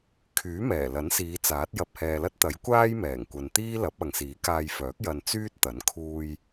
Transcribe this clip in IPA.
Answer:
kʰ yː˨˥ m ɛː˨˩ l ɐ˨˥ n s iː˨˧ t͡s aː˨˥ t̚ j ɐ˨ p̚ h ɛː˨ l ɐ˥ t̚ t̪ ɐ˨˥ j kʷ aː˥ j m ɛː˨˩ ŋ kʷ ɐ˨ n t̪ iː˥ l ɐ˨˥ p̚ ɐ˨ ŋ s iː˨˥ k aː˧ j f œː˨˥ k̚ j ɐ˧ n t͡s yː˥ t̚ t̪ ɐ˨˥ n kʰ uː˧ j

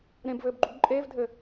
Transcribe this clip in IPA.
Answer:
ɾ ẽ b v ɘː b ɡ͡ǃ u ɡ ǃʼ eː v dʱ ɘ

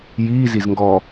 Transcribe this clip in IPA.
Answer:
j iː z i z ŋ ɡ ɔ

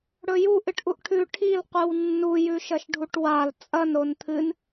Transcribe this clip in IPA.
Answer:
ɽ ɵ j u ʔ ɨ ʈ ʔ u ʔ ʈʰ ʉ ʈʰ i l qʷ ɨ w nː u j ʉ ʃ ɐ ʃ ɖʱ u ʈ w a l t͡sʼ ɐ n ɾ o n t̪ʰ ɨ n

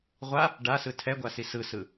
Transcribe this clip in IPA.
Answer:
ʁʷ a | ɖ a s ɯ tʰ ɛ ɡʷ a s i s ɯ s ɯ

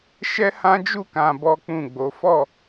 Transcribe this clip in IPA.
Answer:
ʃ ɛ˦ h ã˦ d͡ʒ u˦˨ k ã˧ b ɔ˦ k͡p ũ˦˨ ɡ͡b o˨˦ f ɔ˦˨

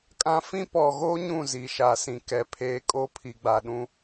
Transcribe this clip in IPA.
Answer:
kʼ ã˦ f ĩ˦ p ɔ˨ ɣ oː˦ ɲ ũ˦˨ z i˨ ʃ a˨ s ĩ˨ k ɛ˨ pʰ eː˦ kʼ oː˦ pʰ i˨ ɡ͡b a˨ ɗ ũ˦

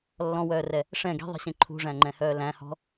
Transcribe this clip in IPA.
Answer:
lː ɔ̃ w œː r ɛ | ʂ ɛ̃ ɡ i̤ ðˤ i̤ ɕ ẽ ǃʰ ṳ ʐ æ̃ ŋ͡ǃ ɛ̃ h œː l æ̃ h ɔ̤

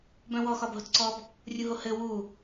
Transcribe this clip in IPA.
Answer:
b œ̃ w ɔ x ɒ b ɦ o t ǀ ɔ b | rʲ u ɦ o h ɘ w u

